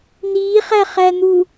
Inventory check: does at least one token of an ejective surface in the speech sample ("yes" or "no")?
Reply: no